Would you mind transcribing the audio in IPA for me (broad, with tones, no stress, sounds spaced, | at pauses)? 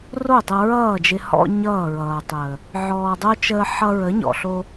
r o˦˨ tˤ ə˧ ɹ ʌː˦˨ d͡ʒ ɪ˧ h ɔ̰˧ ɲ ʌː˦˨ ɹ ʌː˨ tˤ əː˨ | ʕ ɔː˧ dˤ o˦ t͡ʃ əː˧ ħ ʌ˧ ɹ ə˨˦ ɲ ɔ̰˨ ɬ o˧